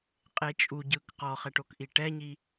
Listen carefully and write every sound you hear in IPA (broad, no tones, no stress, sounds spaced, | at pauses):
qʼ e t͡ʃʼ u ɟ ɯ k q ɔ χ ɛ ʈ o k ʔ i ʈ ɛ ɲ i